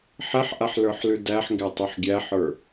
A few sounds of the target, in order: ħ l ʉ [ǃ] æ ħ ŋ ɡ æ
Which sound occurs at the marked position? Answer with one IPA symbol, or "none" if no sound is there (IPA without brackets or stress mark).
d